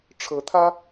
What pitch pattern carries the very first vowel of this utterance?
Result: rising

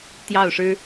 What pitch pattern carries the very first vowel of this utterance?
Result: falling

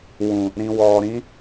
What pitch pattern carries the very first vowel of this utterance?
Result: low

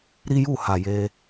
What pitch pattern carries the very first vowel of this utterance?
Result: high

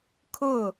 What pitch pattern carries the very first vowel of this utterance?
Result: falling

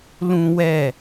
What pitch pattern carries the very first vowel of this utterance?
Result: high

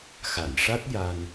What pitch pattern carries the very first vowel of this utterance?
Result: low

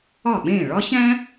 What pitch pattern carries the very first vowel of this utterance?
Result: falling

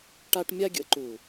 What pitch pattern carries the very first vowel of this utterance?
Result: high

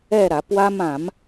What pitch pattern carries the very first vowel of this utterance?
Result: falling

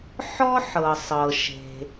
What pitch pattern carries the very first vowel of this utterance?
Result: high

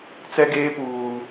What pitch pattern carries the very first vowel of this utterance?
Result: high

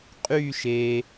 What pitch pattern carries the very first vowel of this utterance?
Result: falling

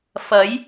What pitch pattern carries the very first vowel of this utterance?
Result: rising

